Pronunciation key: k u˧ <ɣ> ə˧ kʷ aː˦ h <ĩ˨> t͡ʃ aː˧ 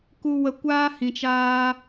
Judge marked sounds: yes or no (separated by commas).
no, yes